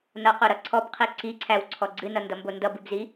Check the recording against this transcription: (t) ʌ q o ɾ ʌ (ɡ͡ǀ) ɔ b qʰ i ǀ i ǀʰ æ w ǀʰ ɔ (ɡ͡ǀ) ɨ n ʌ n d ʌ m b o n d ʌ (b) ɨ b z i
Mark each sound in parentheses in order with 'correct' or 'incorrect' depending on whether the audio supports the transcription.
incorrect, incorrect, correct, correct

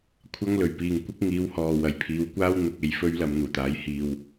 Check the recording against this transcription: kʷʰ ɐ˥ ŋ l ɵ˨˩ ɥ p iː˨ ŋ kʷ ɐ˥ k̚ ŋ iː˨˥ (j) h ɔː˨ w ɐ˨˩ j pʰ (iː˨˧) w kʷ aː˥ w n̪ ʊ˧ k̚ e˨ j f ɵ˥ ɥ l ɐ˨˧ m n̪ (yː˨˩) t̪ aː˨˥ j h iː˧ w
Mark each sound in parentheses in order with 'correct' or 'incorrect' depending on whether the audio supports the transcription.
incorrect, correct, incorrect

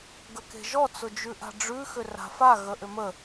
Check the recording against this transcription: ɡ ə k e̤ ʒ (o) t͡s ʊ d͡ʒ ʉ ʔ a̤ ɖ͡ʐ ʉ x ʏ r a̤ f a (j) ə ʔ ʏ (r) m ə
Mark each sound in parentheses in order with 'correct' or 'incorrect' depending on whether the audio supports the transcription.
incorrect, incorrect, incorrect

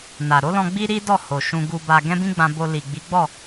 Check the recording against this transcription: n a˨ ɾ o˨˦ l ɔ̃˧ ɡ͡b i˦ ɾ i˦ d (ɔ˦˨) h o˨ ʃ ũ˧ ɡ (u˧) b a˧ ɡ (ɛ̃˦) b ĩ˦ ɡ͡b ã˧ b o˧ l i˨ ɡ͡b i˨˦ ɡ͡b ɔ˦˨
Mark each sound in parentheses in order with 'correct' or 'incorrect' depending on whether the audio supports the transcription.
correct, correct, correct

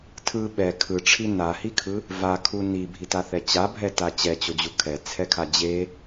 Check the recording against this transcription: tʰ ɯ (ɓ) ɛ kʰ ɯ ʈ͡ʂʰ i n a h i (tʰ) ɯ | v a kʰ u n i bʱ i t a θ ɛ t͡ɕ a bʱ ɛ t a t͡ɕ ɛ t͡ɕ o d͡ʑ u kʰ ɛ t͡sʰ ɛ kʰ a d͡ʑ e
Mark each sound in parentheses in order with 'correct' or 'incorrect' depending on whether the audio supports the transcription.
correct, incorrect

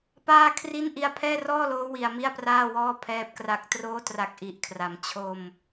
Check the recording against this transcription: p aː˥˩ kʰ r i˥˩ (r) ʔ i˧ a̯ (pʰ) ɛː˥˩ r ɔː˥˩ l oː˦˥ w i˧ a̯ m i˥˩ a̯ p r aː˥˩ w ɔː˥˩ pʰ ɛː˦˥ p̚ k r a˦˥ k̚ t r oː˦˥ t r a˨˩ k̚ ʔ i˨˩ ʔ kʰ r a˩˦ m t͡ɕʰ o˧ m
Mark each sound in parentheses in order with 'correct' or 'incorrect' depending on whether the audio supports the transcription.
incorrect, correct

